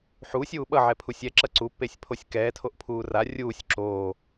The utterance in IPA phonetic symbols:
ħ u sʲ uː ɓ ʌ ʕ ɛ pʰ u sʲ ɛ ǁ ʌ ǀ u pː e sʲ pʰ o sʲ k ɛː tʰ o ʔ pʰ uː r a rʲ uː sʲ ǁ oː

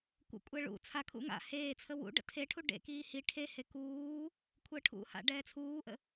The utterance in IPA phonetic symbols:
kʷ ə̰ kʷʼ ɛ ɭ ṵ t͡sʰ a kʰ ṵ ŋ a̰ h eː t͡sʰ ə w ṵ ɖ ə̰ tʰ e ʈʰ u ɖ ḛ k iː h i ʈʰ e h e k uː | kʷʰ əː ʈʰ ṵ h a̰ ɖ ɛː t͡sʰ uː ʔ ə̰

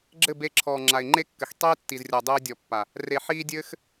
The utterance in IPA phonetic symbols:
ɡ͡ǁ ɘ˦˨ b e˧ ǁʰ ɔː˨ ŋ͡ǁ a˨ ɪ̯ ŋ͡ǃ e˦ kː ɘ˨ x tˤ eː˦ tː i˨ z rʲ ɔ˨ dˤ ɘː˧ ɪ̯ dʲ ɔ˨ pː a˨ | r e˨ ħ iː˧ dʲ ɘː˦ x

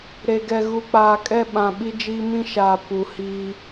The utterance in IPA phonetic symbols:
ɾ e˨ ɡ ɛ˨ ɣ u˨ k͡p aː˨ kʼ ɛ˦ ɓ ã˨ ɓ i˦ d͡ʒ iː˦ m ĩ˦ ʃ aː˨ p u˨ h iː˦

